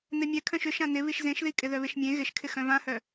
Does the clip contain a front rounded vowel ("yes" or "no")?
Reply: yes